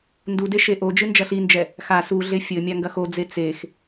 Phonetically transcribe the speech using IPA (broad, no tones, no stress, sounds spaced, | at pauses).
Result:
n d u d e ʃ e ʔ o d͡ʒ ɨ n d͡ʒ ɐ ɬ i n d͡ʒ ɛ | x a s u ɮ e fʲ ɘ mʲ a ŋ ɡ ɐ x o d͡z e t͡s e x